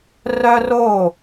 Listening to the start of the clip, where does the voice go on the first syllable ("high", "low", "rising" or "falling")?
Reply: high